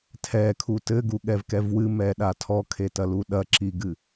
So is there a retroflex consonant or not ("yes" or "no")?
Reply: no